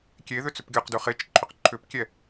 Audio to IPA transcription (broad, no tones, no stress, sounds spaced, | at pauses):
kʲ e ð ʏ t͡s ʏ p ɡʲ ɔ q d ʉ χ e t͡ʃ ǃʰ ʏ q ǃʰ ʏ p kʲ ɛ